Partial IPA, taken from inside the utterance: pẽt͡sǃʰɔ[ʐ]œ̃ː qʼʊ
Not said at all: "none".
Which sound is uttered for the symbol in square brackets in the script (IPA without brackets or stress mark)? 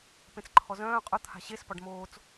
z